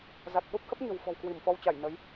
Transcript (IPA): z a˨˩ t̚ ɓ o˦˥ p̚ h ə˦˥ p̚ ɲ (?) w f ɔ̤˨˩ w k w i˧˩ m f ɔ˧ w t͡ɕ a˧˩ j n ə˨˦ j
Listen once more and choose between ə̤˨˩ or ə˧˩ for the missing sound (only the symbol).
ə̤˨˩